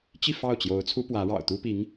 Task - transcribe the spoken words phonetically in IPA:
t͡ɕ i˥˧ f ɑ˥˩ ʊ̯ t͡ɕ j o˧˥ ʊ̯ t͡sʰ u˥ p w ä˧˥ ɻ ɑ̰˨˩ ʊ̯ t̪ u˥ p i˧˥ ŋ

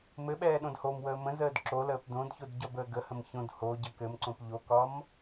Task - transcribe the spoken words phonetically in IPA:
m ɘ ɓ ɛː ɗ õ d h o m w əː m ə̃ z əː d ǁ o l əː p d õ d ç o d ɟ ɒ b əː ɡ ə h ə̃ m ç õ d h o ɟ ə k ɘ m ǀ õ p ʎ o k ɒ m

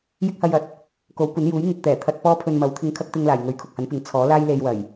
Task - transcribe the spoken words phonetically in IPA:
j ɪ˥ k̚ h ɐ˧ j ɐ˨˥ t̚ | k o˨˥ w kʷ ɐ˨˥ n j uː˨˥ j ŋ ɪ˨ k̚ t̪ ɛː˨˩ t̪ʰ ɐ˧ t̚ p ɔː˥ pʰ ɵ˧ n m ɐ˨˥ w t̪ʰ ɪ˧ ŋ kʰ ɐ˥ k̚ t̪ ɪ˧ ŋ l aː˨˩ j ŋ ɵ˨˥ ɥ kʰ ʊ˨ k̚ h ɐ˨˥ n p ɪ˨˥ ŋ t͡sʰ ɔː˨˥ l aː˥ j l e˧ j w ɐ˨˩ j

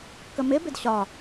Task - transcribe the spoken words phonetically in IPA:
k ə m ɪ b ɪ d ɕ ɒ

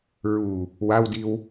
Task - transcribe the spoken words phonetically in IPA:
ɹ u | w a w d i w

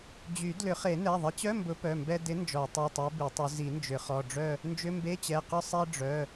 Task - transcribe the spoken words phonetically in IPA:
d͡ʑ y˨˩˦ d l ʏ˨˩˦ χ e˨˩˦ n ɛ˩˧˩ ðˤ ɪ˨˥ t͡ɕ œ˧˥˧ m b ʊ˨˥ p œ˩˧˩ m b ɛ˧ d ɪ˨˥ n d͡ʒ ɔ˨˩˦ tˤ i˩˧˩ tˤ ɛ˨˥ b i˨˩˦ tˤ ʏ˨˥ z i˨˩˦ n d͡ʒ ʏ˨˩˦ χ ɔ˩˧˩ ɖ͡ʐ œ˥˧ | n d͡ʒ ʏ˧˥˧ m b e˧˥˧ t͡ɕ ɛ˩˧˩ q ʊ˥˧ sˤ ɛ˧ ɖ͡ʐ œ˩˧˩

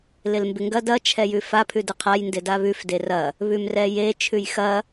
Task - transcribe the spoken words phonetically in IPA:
l ɪ l m b ɪ ŋ ɡ ɐ d ɐ t͡ʃʰ ɛ j ʉ f a pʰ ʉ d ɪ qʰ a j n d ɪ d a β ʉ f d e r ɐ | β ʉ m r ɛ j e t͡ʃʰ ʉ j x ɐ

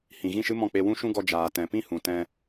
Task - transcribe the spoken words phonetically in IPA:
h ĩ˨ ɣ ĩ˦˨ ʃ ɨ˦ m ɔ̃˦˨ k͡p e˧ w ũ˦ ʃ ũ˦ ɡ ɔ˧ d͡ʒ aː˨ t ɛ̃˨ p ĩ˦ h ũ˨ t ɛ̃˧

